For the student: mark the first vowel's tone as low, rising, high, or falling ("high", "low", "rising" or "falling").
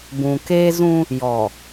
low